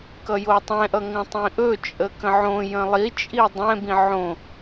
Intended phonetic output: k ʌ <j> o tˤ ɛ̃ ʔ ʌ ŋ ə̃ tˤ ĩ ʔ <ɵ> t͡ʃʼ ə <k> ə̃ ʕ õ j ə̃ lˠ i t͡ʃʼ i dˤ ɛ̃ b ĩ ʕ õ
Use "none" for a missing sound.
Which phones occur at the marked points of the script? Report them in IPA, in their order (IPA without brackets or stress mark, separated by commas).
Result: j, ɵ, k